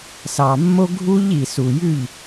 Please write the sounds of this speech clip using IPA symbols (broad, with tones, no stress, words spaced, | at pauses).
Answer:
sɑ˨mːo˦ ɡʱu˦ʎ i˨su˨jʉ˦˨ʎ